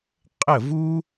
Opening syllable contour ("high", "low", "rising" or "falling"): falling